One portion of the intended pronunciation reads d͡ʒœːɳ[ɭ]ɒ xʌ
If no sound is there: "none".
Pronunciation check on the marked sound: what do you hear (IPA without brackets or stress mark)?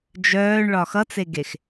ɭ